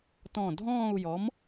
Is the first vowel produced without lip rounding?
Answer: no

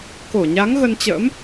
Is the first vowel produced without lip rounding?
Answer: no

